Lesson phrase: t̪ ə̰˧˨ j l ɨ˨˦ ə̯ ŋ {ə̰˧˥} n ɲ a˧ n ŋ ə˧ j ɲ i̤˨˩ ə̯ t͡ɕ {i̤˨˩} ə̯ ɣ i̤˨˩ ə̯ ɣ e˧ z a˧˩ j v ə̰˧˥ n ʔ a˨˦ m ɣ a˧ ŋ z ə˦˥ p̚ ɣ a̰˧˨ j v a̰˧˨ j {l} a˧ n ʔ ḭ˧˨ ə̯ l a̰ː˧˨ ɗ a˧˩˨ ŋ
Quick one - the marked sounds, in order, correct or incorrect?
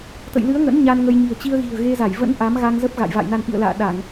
correct, incorrect, incorrect

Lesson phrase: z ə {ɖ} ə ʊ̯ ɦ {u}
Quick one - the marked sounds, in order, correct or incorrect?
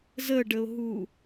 correct, correct

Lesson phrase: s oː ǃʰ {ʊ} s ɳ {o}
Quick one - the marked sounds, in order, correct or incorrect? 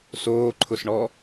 correct, incorrect

